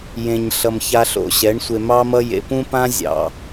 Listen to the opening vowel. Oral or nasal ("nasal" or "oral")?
nasal